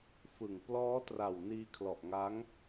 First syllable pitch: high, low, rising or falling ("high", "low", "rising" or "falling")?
low